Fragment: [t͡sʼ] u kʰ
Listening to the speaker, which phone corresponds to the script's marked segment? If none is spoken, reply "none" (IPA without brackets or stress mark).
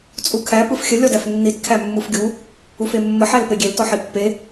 t͡sʼ